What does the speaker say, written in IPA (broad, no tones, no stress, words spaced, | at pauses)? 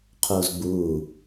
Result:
qʰoːzɡ͡buː